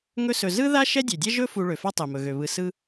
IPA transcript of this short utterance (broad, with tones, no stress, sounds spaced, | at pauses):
ŋ ɵ˦ s ɵ˨ z ɯ˥ ð a˥ ʃ ɛ˥ dʲ ø˩ dʲ ɛ˥ ʒ ɵ˦ f u˨ ɭ ø˩ f a˥ tˤ ɛ˩ m ɵ˩ ɣ ø˩ β ɯ˨ s ɯ˥